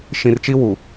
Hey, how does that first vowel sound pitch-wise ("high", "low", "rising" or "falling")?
low